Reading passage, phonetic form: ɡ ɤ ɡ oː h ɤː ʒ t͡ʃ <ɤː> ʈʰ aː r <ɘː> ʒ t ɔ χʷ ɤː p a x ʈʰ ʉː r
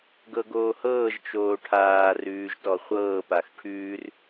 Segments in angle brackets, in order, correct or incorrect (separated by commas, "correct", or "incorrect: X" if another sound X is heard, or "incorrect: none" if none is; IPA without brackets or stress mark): incorrect: oː, incorrect: ʉː